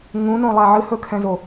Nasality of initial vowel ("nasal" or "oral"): nasal